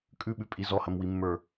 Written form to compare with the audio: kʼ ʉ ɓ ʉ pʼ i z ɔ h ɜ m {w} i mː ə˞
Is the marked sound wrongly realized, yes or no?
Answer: no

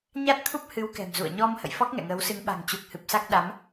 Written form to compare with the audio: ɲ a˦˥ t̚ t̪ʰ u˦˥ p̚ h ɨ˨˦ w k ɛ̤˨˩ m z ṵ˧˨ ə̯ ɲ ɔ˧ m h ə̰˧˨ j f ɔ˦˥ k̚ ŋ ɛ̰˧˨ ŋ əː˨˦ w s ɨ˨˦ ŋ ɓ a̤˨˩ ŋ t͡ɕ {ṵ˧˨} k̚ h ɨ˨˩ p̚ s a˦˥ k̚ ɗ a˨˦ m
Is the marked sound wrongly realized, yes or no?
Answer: yes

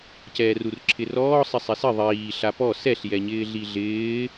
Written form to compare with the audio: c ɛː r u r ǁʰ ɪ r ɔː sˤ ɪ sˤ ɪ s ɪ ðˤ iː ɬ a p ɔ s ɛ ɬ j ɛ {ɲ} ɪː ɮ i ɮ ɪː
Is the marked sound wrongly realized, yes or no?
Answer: no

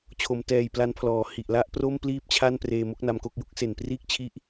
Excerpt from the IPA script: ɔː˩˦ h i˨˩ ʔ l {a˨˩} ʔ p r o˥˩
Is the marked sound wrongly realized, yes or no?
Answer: yes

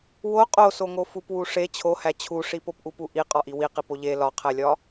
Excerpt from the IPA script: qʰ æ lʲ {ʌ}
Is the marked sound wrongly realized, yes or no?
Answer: yes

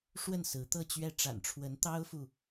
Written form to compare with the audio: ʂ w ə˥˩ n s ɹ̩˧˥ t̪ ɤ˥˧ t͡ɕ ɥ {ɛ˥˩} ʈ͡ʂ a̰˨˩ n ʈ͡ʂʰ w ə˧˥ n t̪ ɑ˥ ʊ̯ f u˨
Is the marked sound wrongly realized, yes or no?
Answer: no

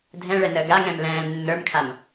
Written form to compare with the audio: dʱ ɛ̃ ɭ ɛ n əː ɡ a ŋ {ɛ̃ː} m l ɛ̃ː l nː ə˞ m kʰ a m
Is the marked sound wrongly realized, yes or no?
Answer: yes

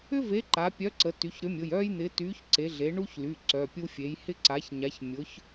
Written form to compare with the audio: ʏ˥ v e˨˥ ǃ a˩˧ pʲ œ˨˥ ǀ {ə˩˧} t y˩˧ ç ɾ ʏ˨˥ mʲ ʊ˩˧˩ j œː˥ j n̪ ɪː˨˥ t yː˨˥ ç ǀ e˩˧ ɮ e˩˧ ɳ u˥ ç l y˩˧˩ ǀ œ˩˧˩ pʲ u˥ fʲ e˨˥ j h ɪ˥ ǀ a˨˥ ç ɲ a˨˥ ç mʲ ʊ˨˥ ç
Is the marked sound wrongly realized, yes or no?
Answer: no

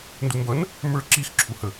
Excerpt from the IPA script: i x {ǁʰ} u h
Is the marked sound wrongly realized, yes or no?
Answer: no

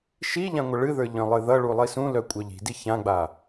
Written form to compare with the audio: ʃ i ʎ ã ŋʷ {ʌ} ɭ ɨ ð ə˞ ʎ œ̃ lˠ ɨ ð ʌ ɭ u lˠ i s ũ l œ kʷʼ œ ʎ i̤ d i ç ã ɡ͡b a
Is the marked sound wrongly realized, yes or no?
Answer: no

